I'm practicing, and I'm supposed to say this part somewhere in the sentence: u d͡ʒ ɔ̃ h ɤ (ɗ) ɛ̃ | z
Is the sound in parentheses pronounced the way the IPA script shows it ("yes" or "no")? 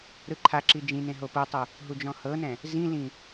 no